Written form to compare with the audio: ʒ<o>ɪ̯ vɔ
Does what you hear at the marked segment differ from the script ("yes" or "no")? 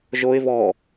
no